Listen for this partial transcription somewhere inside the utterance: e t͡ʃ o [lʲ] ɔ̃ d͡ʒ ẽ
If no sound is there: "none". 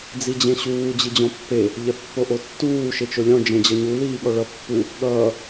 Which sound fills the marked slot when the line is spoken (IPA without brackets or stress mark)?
lʲ